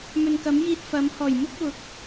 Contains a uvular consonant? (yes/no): no